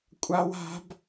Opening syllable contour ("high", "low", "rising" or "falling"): high